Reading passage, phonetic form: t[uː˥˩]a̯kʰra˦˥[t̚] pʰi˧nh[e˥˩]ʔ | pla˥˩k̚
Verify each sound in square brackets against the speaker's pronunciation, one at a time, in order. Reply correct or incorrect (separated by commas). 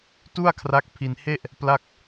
incorrect, incorrect, correct